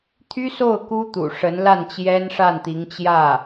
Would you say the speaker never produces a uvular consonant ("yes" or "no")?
yes